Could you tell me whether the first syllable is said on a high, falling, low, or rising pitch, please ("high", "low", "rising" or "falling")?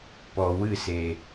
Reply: low